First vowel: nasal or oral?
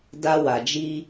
oral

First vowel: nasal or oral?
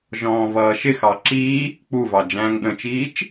nasal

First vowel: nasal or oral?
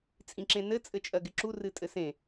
nasal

